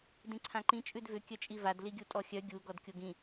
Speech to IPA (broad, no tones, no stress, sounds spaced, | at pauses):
d ĩ ǀʰ ã ǃ ĩ t͡ʃʼ ʉ d v ʏ kʲ œ t͡ʃʼ i v a d l i ɡʲ u tʼ ɔ xʲ œ ɡʲ u ɡ ɔ d kʲ o ɡ ĩ